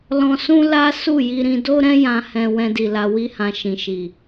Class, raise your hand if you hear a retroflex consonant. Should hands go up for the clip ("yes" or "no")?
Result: no